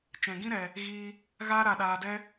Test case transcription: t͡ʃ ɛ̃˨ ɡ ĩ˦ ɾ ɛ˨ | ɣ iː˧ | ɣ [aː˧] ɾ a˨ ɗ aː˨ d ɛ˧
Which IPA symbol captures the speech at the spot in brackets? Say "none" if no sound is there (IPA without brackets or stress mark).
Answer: aː˧